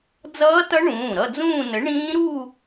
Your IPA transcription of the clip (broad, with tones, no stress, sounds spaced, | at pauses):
d͡z ʌː˦˥ t ʌ˦˥ ɳ ũː˩˧˩ ɾ ʌ˥˧ d͡z ũː˥˧ n ə˨˥ ɳ ĩː˦˥ ɾ u˥˧